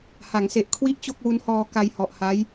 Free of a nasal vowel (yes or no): yes